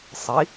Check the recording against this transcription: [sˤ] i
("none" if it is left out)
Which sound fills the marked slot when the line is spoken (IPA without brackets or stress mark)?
sˤ